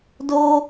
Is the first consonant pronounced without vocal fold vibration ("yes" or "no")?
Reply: no